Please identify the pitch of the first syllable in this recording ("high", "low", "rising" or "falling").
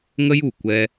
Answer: high